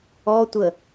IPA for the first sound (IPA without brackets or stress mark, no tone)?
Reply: ɔ